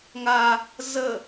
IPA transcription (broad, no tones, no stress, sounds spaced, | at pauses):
ŋ a | z ə